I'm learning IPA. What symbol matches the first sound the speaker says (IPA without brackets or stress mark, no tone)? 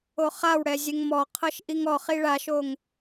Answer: o